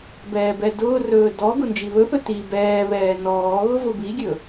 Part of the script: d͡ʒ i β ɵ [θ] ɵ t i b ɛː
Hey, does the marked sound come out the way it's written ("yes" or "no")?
yes